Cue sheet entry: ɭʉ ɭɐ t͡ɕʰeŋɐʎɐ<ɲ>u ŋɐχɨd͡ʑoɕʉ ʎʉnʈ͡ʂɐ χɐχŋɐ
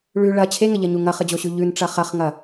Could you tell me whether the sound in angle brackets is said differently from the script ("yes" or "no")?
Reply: no